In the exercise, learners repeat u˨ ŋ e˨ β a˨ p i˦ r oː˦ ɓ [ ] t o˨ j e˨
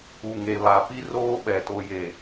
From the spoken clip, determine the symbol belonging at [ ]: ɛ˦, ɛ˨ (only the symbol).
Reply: ɛ˨